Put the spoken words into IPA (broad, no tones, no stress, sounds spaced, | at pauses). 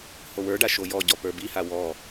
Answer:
h o w ə˞ ɖ a ʃ o j ɔ ɟ ɔ p ə˞ b i h a w ɔ